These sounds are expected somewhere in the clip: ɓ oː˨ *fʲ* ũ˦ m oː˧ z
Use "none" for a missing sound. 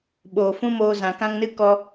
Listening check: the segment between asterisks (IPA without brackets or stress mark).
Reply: f